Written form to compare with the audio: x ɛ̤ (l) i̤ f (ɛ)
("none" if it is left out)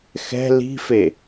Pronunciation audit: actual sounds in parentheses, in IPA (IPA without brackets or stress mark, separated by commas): l, e